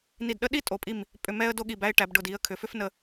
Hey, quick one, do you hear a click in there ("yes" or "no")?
no